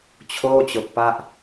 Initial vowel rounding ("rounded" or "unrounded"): rounded